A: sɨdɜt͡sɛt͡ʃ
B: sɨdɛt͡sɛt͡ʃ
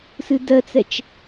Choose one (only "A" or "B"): A